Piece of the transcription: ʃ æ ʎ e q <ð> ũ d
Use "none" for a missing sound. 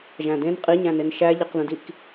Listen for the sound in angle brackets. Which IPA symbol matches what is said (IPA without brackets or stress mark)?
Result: ð